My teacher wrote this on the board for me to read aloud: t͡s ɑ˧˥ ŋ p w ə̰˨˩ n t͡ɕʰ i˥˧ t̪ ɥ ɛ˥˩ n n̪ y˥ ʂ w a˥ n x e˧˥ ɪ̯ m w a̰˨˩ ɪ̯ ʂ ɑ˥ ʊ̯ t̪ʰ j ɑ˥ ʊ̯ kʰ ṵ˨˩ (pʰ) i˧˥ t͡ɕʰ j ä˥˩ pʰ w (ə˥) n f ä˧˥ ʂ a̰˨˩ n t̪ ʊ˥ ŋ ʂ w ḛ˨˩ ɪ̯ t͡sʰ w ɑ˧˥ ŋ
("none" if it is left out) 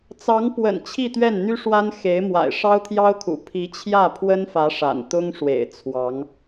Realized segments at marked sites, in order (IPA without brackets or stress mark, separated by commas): pʰ, ə˥